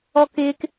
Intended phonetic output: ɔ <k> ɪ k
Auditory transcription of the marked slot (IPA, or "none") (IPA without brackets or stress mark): k